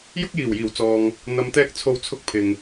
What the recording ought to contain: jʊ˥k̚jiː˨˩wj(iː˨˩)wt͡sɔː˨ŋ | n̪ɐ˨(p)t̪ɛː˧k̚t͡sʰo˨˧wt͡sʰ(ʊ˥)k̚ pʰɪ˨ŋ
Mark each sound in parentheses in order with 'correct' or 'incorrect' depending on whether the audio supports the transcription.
correct, incorrect, incorrect

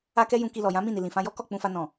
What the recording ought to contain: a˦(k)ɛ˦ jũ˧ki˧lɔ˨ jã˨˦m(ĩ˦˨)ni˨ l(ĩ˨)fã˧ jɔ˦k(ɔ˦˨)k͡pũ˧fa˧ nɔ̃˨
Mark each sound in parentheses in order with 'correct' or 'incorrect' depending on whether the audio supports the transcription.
correct, correct, correct, correct

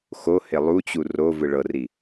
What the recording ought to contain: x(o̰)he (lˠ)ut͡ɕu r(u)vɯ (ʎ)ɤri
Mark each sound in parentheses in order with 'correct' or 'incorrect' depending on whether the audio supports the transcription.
incorrect, correct, incorrect, incorrect

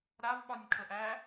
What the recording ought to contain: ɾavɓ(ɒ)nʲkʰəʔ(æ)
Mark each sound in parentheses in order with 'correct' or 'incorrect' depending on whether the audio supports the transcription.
correct, correct

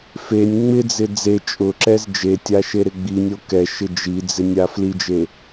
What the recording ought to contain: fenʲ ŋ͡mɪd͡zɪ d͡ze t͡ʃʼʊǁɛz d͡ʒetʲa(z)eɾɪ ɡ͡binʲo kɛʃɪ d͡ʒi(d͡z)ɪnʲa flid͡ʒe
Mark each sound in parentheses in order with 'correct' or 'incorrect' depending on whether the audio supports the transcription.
incorrect, correct

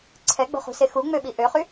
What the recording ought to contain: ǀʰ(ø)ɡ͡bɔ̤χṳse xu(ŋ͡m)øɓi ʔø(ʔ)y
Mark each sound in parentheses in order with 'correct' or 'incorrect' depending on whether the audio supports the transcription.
incorrect, correct, incorrect

